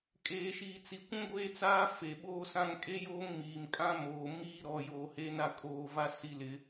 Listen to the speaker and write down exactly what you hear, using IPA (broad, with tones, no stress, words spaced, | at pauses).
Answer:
kʼeː˨ʃiː˨t͡si˨kʷũ˦ ɡʷeː˦t͡saː˦ fe˨ɓoː˦sã˦ŋ kʼe˦joː˦ŋ miː˨mkʼã˦moː˨ miː˦ ɾɔ˨joː˨he˨˦ na˦kʼoː˦˨va˦ si˦lɪ˦